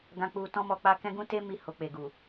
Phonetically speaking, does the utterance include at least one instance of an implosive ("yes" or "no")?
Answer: no